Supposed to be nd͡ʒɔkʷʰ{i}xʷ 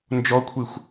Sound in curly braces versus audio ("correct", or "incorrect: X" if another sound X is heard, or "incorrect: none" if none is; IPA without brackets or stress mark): correct